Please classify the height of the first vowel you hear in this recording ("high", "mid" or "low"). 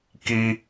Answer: high